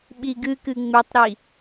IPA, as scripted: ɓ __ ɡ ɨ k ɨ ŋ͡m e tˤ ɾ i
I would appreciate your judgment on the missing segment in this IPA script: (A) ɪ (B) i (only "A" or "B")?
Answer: B